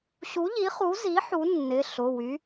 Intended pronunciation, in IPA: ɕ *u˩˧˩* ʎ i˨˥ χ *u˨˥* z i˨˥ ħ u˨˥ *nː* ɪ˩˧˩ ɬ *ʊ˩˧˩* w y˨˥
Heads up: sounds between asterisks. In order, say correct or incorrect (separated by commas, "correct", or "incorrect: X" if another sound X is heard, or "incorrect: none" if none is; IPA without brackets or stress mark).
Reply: incorrect: u˨˥, correct, correct, correct